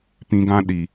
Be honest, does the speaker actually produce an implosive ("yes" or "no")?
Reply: yes